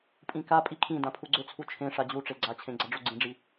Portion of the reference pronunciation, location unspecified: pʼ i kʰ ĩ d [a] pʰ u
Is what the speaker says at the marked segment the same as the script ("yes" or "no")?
no